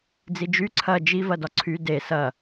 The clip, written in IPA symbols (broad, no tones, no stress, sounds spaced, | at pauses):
d͡z i d͡ʒ y ǀʰ ɐ d͡ʒ i v ɐ d ɒ ǀʰ y d e s ɐ